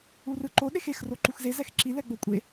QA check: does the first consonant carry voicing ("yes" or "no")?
yes